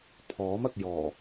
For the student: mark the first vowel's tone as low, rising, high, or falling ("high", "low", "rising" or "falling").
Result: rising